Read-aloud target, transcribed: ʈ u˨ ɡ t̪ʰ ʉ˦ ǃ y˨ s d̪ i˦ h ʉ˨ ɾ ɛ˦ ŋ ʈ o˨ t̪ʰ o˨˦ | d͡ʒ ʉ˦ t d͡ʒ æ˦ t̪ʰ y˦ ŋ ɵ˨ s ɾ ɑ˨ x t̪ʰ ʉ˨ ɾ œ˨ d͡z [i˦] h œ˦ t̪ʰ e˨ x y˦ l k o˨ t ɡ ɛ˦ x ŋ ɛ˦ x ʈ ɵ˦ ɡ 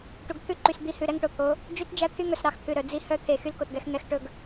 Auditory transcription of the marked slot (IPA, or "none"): i˦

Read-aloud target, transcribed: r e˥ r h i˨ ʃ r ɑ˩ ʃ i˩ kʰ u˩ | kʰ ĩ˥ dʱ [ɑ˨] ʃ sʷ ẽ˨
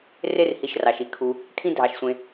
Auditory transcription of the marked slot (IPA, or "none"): ɑ˨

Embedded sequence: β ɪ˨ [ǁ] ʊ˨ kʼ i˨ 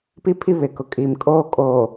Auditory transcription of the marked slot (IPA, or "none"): k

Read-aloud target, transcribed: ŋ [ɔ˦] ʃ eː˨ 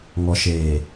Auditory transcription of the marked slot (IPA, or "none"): ɔ˨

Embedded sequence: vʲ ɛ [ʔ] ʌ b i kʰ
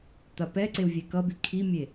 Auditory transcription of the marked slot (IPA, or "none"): k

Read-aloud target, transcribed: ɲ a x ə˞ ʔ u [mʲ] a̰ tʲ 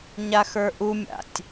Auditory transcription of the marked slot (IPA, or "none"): mʲ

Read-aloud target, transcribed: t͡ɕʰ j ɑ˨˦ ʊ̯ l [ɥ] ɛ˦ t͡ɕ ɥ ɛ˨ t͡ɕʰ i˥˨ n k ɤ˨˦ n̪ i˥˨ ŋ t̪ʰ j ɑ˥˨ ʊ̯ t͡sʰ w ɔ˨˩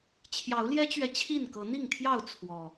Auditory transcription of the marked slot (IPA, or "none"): j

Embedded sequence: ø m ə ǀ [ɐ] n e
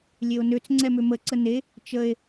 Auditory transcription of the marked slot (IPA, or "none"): ə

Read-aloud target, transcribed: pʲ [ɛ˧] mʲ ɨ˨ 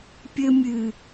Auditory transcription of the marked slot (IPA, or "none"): ɘ˧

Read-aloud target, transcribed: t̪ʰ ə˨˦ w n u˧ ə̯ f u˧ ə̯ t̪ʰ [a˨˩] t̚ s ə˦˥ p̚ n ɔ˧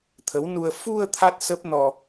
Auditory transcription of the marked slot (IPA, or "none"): a˦˥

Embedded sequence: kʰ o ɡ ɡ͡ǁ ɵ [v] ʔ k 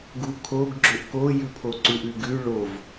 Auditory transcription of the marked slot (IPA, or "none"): none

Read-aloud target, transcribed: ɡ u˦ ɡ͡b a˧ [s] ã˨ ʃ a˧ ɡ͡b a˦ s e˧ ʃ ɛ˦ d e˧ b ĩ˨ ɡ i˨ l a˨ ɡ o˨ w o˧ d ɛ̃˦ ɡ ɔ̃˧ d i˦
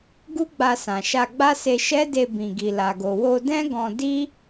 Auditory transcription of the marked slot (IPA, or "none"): s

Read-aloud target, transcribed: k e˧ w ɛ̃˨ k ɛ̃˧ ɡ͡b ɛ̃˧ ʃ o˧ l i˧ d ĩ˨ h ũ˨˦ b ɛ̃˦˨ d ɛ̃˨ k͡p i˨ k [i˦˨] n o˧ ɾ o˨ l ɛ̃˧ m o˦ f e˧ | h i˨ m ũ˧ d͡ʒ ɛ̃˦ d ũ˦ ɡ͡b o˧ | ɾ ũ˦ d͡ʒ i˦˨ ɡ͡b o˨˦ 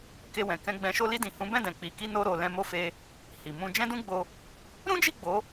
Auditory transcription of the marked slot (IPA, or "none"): i˧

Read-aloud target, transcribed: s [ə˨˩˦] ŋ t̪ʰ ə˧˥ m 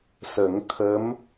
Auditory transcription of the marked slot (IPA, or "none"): ə˨˩˦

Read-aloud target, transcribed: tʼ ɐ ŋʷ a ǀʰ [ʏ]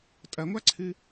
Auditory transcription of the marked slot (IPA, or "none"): ɨ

